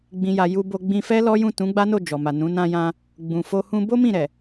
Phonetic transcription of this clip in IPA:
ɡ͡bĩ˨ja˨ ju˧bo˧ ɡ͡bĩ˧fɛ˦ lɔ˦jũ˦˨ tũ˨˦ɡ͡ba˦no˦˨ d͡ʒɔ˨ma˨nũ˨˦ nã˧jã˧ | ɡ͡bũ˨fo˧ hũ˧bo˦ mĩ˦˨ɾɛ˨

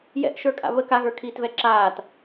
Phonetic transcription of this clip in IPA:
jɛ̰ʔ ʃə˞kʼa̰βə kaɣə˞ kʰiːtvɛǁaːt

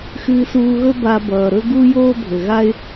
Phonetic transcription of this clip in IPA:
xɨː˧suː˧ɣɵ˥ ba˧bʌː˩ ɾɵ˥ɡu˥ joː˥bʱɘ˩ɣa˥ɪ̯

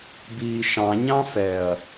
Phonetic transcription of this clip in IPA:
biːʃɑ̃ ɲɑ̃fɛɐ̯

